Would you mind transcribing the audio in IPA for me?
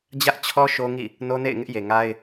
d͡ʑ ä˦ ʔ t͡ɕʰ ɔ˦ ʃ o˦ ŋ ḭ˦˨ | n o˦ n ḛ˦˨ ɪ̯ ŋ ɪ˦ ʔ j e˨ ŋ a˦ ɪ̯

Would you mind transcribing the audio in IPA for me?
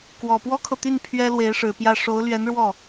k w ɔ˨˩ p w ɔ˥ kʰ ɤ˨ t̪ y˥˩ n pʰ ɥ ɛ˥ l w e˧˥ ɪ̯ ʂ ɻ̩˨˩ p j ä˥˩ ʂ o˧˥ ʊ̯ l ɥ ɛ˧˥ n ɻ w ɔ˥˩

